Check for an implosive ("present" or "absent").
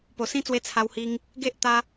absent